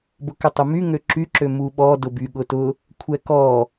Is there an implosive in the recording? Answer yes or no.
yes